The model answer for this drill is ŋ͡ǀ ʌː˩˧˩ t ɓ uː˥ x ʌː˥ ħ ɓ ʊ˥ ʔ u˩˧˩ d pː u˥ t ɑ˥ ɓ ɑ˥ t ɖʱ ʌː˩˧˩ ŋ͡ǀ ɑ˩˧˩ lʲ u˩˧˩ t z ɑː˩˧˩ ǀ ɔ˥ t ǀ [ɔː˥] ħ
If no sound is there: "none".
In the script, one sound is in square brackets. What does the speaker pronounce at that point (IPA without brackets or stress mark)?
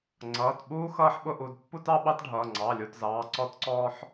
ɔː˥